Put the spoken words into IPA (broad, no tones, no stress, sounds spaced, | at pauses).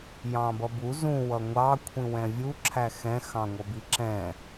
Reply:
j ɑ̃ b ʌ b u z ũ w ʌ ŋʷ ɑ kʷʰ ĩ w ɛ̃ vʲ u ǁʰ æ x ɛ̃ x ɑ̃ ŋʷ ʌ b i ǁ ɛ̃